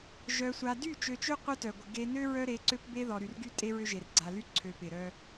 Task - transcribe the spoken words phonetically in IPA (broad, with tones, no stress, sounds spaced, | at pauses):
ʒ œ˨ sʷ a˨ d y˦˨ t͡ʃ ø˨ t͡ʃ ø˦ qʷ œ˦ t œ˨ ɡʷ ɪ˨ ɡ e˨ n ø˦ ɹ œ˦ ɾ e˨˦ ǀ ø˦ p b e˦ ð ɔ˨ ɾ y˨ r ɡ y˦ tʼ e˦ ɹ ø˦ ʒ e˨ r ɡ͡ǀ a˨ l y˦ ǀʰ ø˨ p ɪ˨ ɾ œ˦